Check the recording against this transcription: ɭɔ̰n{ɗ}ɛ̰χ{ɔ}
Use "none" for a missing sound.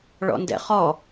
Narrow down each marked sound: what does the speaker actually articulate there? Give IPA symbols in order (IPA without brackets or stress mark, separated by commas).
d, ɔ